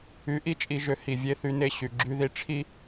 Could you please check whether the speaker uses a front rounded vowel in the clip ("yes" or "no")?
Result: yes